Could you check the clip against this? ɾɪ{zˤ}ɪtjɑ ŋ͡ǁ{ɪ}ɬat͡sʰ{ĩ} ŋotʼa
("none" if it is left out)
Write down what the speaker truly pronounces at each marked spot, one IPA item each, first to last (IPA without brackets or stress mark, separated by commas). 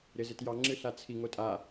z, ɨ, i